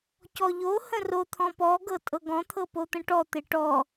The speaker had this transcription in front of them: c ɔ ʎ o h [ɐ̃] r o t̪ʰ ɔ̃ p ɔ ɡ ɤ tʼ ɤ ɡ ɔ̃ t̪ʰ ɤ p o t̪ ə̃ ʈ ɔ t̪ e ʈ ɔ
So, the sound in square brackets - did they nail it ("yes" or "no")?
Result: no